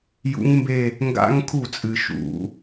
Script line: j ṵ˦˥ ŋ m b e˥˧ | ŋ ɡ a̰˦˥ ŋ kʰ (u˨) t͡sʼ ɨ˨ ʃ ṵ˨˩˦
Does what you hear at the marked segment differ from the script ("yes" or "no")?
yes